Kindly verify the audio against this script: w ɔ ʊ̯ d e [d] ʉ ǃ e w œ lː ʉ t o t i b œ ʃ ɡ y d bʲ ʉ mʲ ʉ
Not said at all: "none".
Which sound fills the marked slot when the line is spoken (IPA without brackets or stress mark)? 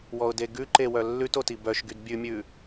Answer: ɡ